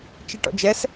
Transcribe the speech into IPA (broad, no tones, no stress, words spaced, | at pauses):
t͡ʃiʈɔ̰d͡ʒɛs